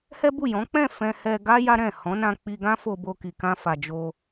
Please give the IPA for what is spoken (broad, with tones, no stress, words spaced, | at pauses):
hɛ˦bu˦˨ jɔ̃˨˦k͡pɛ̃˦˨ fɛ̃˧hɛ˧ ɡa˦ ja˦ɾɛ̃˦˨ hɔ̃˨˦nã˧ k͡pi˧ɡã˦ fo˧bo˧ ki˨kã˧fa˨ d͡ʒo˧